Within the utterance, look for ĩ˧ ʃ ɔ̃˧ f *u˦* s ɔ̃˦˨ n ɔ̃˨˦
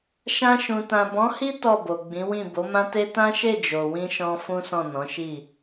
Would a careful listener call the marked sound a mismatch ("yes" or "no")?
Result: yes